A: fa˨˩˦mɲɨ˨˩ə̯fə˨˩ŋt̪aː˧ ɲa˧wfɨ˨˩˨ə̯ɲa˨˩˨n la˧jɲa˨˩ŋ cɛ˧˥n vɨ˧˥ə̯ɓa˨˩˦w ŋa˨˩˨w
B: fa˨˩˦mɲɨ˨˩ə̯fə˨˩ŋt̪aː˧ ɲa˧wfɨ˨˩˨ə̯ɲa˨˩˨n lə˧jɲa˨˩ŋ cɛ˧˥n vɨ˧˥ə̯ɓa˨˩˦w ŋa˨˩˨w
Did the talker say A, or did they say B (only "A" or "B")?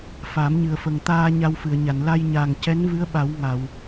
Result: A